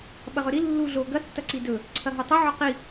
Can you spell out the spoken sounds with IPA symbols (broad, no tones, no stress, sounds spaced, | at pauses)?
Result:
ɓ ɐ ʁ ɵ ɾ i lː u ɮ o ɡ ɐ tː ɐ ǀ i d ɵ | ǀʰ ɐ ɦ o tˤ ɵ ʕ ɵ q i